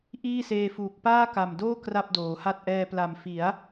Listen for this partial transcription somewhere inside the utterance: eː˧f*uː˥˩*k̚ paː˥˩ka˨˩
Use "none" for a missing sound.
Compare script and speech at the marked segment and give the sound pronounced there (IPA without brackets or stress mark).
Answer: uː˨˩